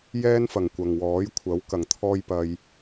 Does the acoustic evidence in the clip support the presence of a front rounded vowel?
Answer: no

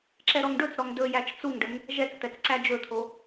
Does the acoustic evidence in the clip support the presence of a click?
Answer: yes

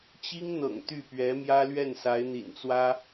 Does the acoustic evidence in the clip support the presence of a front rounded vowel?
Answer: yes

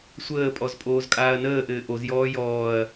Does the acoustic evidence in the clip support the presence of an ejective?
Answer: yes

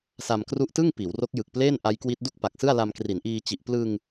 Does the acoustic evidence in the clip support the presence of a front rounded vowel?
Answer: no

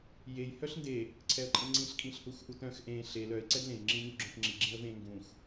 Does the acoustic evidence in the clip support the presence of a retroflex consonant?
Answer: no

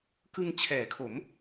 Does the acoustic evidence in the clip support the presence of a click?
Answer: no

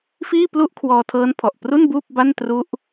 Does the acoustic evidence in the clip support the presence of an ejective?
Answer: no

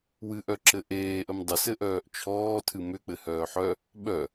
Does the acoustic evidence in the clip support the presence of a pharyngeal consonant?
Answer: yes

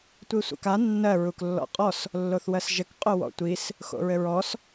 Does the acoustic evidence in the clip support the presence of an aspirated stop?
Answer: no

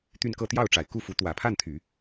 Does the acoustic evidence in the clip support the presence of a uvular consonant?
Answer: no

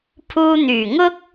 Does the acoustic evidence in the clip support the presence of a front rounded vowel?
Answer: yes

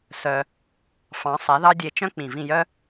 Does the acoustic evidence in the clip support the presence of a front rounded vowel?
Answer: yes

